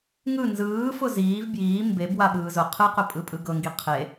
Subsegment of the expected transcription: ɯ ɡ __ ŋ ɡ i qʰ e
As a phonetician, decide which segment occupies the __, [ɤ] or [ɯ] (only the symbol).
ɤ